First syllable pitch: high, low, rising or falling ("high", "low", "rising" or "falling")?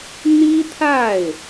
high